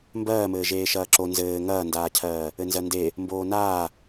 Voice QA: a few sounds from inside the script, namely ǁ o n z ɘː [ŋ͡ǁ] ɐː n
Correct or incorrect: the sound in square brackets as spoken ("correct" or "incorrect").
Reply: incorrect